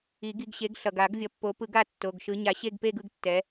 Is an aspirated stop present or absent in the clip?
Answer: absent